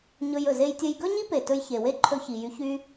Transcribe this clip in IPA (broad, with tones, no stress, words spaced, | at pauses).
ɲɵ˧jɵ˩ ze˧jtʲə˧j ɡɵ˥ɲi˥pe˩ tɵ˧j çe˩we˥ ǃʰɵ˧çi˩jy˧ çy˧